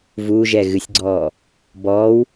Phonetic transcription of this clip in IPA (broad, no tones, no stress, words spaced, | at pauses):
vuʒɛ ɣɨsʲɡ͡ǀɔː | bɔːw